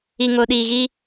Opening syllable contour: low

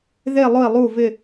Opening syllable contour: falling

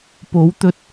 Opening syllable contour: rising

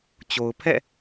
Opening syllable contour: low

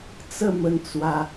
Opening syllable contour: falling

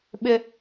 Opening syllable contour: high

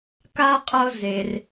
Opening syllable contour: high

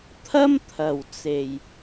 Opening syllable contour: high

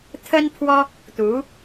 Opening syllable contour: high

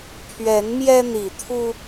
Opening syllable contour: rising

